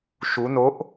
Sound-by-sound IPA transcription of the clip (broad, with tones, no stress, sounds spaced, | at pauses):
ʃ u˨˦ n o˨˦ ʔ